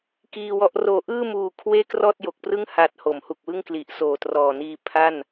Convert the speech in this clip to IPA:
k iː˧ w ɔ˦˥ ʔ r oː˨˩ ʔ ɯː˥˩ m uː˨˩ kʰ w eː˥˩ k r ɔː˥˩ t̚ j o˨˩ k̚ p r ɯ˥˩ ŋ h a˨˩ t̚ h o˩˦ m h u˨˩ k̚ w ɯ˥˩ ŋ k l i˨˩ ʔ s oː˨˩ t r ɔː˨˩ n iː˧ pʰ a˥˩ n

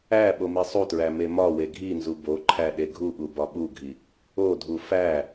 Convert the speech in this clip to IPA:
æ ɓ o m i sˤ u t ɹ æ m e m ɒ w e ɡʱ i n z u b o ǃʰ æ ɗ e ɡʱ u ɠ u b ɒ ɓ u ɡʱ i | o dʱ u f æ

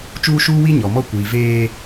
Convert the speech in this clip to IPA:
t͡ʃ uː˦ ʃ uː˦ w i˦ ɲ ɔ˨ m ɔ˦ kʷ iː˨ v eː˦

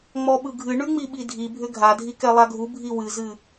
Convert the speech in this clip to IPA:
ŋ͡m ɔ ɓ ɯ ɡʱ ɨ ɳ ʉ ŋ͡m i ɓ i dʱ i bʱ ʏ ɡʱ a dʱ i k ɛ lˠ a ɡʱ u bʱ i w ɨ z ɨ

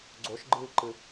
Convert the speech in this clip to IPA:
ɡ͡ǀ o ʃ ɡ͡ǃ ɨː ǃ ɨ

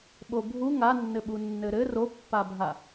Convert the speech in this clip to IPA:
ɓ o bʱ u ŋ a nː ɘ ɓ u nː ɘ ɾ ɘ r o pː a bʱ a

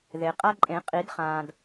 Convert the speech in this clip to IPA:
ð e˩ qʼ a˦ ǃʼ ẽ˨˩˦ qʼ i˨˩˦ d χ ãː˩ d

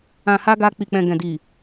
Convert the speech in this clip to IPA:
ã˨ h a˧ ɡ a˧ k͡p i˨ k͡p ɛ̃˨ ɡ ɛ̃˨ d i˨

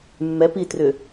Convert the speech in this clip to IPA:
mː ɛ p i t r ʏ

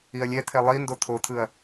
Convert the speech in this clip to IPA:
i ɐ̯ lʲ ɛ t̪ʰ ɛ lˠ i n d o t̪ʰ o t̪ʰ ɯ ɐ̯

